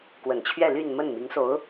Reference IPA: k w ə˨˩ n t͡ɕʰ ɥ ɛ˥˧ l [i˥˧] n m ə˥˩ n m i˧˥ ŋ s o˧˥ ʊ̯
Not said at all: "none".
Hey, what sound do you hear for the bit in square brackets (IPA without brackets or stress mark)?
y˥˧